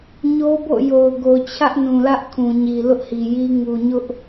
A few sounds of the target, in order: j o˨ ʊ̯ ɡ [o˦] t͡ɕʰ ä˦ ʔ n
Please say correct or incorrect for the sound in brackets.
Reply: incorrect